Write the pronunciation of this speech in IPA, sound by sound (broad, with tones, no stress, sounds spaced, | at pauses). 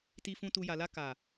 t i˧ f ũ˧ t u˧ j a˨ l a˧ k a˨